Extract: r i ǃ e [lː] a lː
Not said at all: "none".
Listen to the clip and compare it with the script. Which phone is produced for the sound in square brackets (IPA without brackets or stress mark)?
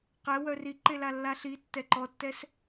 l